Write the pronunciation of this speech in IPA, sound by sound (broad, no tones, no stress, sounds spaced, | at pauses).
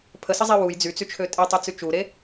pʰ ə s ə zˤ i w u j d͡z y t͡s y t͡ʃʰ ø tʼ e tˤ e t͡s y t͡ʃ u ɾ e